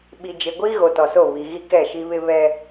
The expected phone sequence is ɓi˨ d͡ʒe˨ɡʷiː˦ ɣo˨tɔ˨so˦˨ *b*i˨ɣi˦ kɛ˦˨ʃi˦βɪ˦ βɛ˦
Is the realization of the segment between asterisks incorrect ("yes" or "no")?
yes